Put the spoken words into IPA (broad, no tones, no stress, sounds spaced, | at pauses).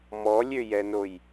m ɔ lʲ ø j ɛ n o j